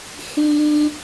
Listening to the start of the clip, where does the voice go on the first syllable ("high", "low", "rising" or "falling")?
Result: high